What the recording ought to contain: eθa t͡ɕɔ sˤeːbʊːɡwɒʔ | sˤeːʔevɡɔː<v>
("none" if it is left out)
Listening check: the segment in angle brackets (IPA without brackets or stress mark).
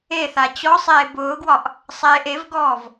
v